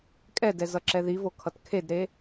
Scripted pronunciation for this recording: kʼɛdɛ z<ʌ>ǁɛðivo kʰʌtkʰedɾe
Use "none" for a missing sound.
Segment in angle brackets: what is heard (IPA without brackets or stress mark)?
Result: ʌ